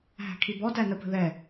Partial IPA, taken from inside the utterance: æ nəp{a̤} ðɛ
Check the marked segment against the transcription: incorrect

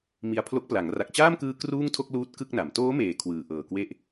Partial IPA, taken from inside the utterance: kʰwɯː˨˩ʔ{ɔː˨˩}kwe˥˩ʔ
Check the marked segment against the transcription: incorrect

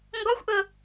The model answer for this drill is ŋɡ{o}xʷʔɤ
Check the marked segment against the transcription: incorrect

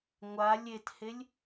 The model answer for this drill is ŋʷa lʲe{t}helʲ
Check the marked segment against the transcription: correct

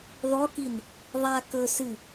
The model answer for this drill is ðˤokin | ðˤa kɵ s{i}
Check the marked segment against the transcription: incorrect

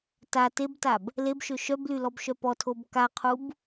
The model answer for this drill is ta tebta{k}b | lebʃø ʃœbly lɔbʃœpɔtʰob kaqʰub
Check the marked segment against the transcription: incorrect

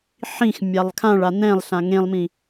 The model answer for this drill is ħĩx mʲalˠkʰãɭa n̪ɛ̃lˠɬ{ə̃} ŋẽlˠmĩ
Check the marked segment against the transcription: incorrect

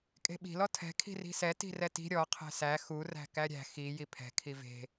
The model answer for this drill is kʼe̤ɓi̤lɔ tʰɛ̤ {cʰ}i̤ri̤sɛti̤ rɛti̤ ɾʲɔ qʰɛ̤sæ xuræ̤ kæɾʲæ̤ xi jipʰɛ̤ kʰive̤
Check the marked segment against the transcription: incorrect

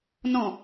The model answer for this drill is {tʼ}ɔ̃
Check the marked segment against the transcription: incorrect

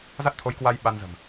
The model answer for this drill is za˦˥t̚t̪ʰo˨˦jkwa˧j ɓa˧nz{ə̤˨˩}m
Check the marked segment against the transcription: correct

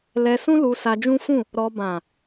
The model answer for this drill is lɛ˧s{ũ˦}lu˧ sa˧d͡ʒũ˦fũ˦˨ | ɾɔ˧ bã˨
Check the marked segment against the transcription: correct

